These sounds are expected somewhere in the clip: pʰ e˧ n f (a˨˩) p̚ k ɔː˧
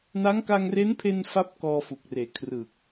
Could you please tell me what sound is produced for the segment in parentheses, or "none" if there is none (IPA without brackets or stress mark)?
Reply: a˥˩